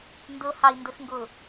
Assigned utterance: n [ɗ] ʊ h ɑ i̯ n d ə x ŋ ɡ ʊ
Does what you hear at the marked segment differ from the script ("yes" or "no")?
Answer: yes